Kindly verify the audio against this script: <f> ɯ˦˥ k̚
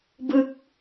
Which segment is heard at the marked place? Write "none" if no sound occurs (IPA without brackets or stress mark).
b